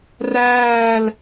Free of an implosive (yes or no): yes